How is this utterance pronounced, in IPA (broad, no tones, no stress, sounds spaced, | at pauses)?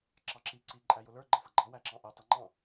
ǁ ɑ ǁ i ǀ i ǃʼ æ j ʊ l ə˞ ɡ͡ǃ ʌ f ʌ ɡ͡ǃ ɑ w æ ǁ ɑ̃ ʔ ɛ tˤ ʌ ŋ͡ǃ ɑ̃